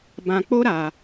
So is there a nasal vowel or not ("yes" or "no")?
yes